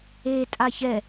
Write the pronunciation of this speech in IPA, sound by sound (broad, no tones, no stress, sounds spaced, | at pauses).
e tʼ a ç ɛ